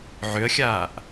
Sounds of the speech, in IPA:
ʕ ʏ ə̯ xʲ aː ʔ

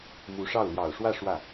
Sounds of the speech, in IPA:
m u˧˥ ʂ ɑ˥˩ ʊ̯ l j ɑ˨˩ ʊ̯ ʂ w ä˥˧ ʂ w ä˥˩

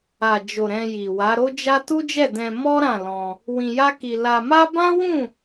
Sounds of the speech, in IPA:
a˨ d͡ʒ o˨ ɾ ɛ̃˧ j i˨ w a˨˦ ɾ o˦ d͡ʒ a˦ t u˦ d͡ʒ ɛ˦˨ d ɛ̃˧ m ɔ˦ ɾ ã˦˨ l ɔ̃˧ | w ĩ˧ j a˦ k i˧ l a˧ m a˦ b ã˦ w ũ˦˨

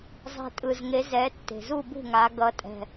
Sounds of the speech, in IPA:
zˤ ɛ̤˨˩ tʼ ɯ˨˩ z ŋ e˨˦ z ɛ˨˦ tː e̤˨˩ z u˥˨ b ṳ˥˨ ŋ a˨˦ ɡ ʌ˨˦ tʼ ɛ̤˨˩

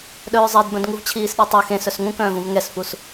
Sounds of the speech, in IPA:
ɗ œː zˤ ɛ d b œ̃ d ŋ u v t͡ɕʰ iː s ɗ e tˤ u x ẽ s œ s ŋ ũ k œ̃ː v ũ v ŋ ɛ s f u s

